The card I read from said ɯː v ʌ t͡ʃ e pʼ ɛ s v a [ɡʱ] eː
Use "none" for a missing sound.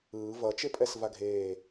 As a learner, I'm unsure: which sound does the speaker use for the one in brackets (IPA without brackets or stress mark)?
ɡʱ